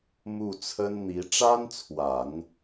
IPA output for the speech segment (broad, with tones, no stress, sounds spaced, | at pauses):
m u˥˩ t͡sʰ ə˥ n n̪ i˧˥ ʈ͡ʂ a˥ n t͡sʰ w a˨˩˦ n